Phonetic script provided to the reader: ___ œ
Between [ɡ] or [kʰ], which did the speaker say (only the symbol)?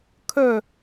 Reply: kʰ